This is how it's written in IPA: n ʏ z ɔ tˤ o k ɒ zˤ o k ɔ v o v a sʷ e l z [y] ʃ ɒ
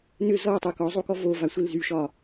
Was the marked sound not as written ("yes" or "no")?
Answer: no